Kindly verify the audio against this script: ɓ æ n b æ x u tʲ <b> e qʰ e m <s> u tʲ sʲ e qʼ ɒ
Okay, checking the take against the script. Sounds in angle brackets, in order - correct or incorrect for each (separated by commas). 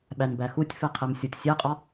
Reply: incorrect, incorrect